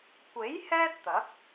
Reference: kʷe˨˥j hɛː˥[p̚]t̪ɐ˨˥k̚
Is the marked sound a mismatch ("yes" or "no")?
yes